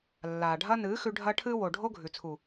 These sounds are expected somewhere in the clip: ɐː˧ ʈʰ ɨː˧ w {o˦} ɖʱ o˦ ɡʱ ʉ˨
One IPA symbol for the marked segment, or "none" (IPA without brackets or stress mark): o˨